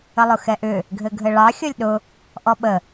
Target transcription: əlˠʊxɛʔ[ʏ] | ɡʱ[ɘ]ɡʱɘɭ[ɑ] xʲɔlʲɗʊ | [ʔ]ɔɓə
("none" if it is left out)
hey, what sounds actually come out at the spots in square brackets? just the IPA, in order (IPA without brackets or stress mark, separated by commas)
ʏ, ɘ, ɑ, ʔ